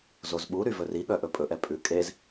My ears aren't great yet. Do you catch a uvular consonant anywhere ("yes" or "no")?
no